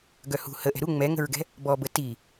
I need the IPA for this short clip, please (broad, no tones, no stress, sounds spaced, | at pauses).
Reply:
ɡ œ h ṳ h ə ʔ ɛ̤ ɾ u ŋ͡m ɛ ŋ ə̤ ɹ ɡ ɛ̤ | b ɔ b ə t i